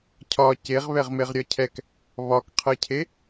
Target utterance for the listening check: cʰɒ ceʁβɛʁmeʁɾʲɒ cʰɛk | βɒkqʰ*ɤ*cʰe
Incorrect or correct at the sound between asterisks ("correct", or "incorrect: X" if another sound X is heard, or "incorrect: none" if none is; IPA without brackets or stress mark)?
correct